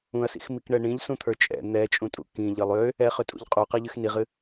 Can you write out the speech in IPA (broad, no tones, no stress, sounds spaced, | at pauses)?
ũ ɐ̯ s ḭ x m i k ɳ ɛ ɳ ĩ ʎ s ũ t̪ʰ ə˞ t͡ʃʼ ɛ̰ n̪ ɛ t͡ʃʼ ũ tʼ ṵ k ĩ ʎ ɨ lˠ ø | ɛ χ ø tʼ ṵ ʎ qʼ u q ɨ ʎ ɨ x n i ʁ ɨ